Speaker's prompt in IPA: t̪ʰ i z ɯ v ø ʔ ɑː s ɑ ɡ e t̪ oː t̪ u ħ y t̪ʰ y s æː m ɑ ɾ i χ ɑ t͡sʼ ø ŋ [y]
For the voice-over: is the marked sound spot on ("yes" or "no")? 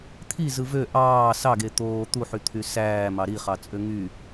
yes